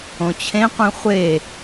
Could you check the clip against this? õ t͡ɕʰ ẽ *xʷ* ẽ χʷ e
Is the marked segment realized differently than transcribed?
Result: yes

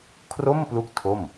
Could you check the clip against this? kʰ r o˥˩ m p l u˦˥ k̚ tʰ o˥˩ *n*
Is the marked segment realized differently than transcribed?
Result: yes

